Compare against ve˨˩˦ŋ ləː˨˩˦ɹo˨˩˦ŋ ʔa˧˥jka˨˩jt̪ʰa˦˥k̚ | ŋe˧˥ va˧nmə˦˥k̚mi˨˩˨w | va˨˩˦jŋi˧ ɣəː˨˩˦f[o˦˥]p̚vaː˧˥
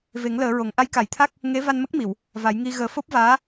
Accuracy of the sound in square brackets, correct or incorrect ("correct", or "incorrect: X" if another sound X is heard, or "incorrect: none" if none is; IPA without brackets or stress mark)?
correct